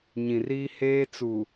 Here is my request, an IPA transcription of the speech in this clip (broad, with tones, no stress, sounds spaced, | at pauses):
ɲ ĩ˨ r iː˦ h eː˦ t͡s u˨